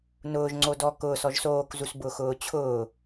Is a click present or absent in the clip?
present